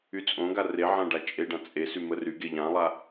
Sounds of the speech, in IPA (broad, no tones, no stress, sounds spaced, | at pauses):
y t͡sʼ õ ɡ a r e ʕ ã ɖ a t͡ʃʼ e ɖ ã t͡sʼ e s y m ə r y ɡ e ʎ ã lˠ a